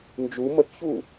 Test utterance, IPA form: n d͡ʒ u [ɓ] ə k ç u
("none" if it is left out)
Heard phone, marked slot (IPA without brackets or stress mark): m